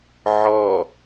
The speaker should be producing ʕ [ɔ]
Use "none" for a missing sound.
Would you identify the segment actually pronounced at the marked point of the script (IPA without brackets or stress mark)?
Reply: ɔ